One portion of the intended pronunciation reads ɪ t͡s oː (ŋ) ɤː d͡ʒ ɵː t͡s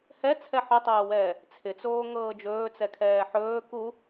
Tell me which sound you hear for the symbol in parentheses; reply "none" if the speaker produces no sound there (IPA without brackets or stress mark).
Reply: ŋ